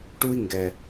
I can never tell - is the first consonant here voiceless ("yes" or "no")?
yes